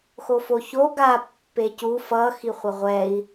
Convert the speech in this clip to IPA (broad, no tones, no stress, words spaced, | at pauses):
xofoço ɡa pːecu fʌ xiχʷʌʁʷɛi̯